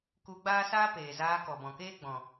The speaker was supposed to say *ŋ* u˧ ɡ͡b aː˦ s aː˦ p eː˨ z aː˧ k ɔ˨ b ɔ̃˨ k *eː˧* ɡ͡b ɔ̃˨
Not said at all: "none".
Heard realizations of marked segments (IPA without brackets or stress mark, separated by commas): k, eː˦